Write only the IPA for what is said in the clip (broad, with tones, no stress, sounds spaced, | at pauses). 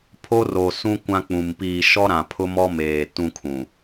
pʰ o˦ r o˨ s ũ˦ kʷ ã˦ k͡p ũ˨ m p iː˨ ʃ ɔ˦ ɾ ã˨ pʰ ʊ˦ m ɔ˦ m eː˨ t ũ˦ kʰ ũ˨